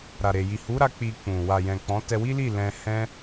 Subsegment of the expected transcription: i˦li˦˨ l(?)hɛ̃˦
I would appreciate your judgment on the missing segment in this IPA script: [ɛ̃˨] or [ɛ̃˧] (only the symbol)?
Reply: ɛ̃˧